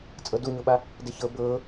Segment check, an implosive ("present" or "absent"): present